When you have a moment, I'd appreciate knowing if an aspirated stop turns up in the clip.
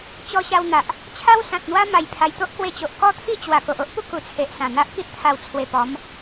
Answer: yes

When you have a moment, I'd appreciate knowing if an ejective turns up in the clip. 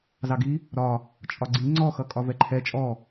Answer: yes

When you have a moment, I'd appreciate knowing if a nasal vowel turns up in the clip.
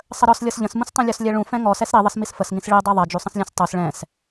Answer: yes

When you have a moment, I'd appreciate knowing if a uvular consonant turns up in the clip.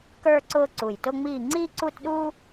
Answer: no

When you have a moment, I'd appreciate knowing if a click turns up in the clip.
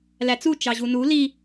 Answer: no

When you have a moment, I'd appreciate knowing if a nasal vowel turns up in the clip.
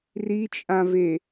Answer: yes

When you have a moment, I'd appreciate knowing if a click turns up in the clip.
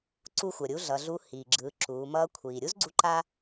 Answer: yes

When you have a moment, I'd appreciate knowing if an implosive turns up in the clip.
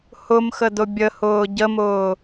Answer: no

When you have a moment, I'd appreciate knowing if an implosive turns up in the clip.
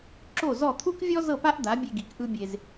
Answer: no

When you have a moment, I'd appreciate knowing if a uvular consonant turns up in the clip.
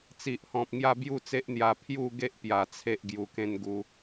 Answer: no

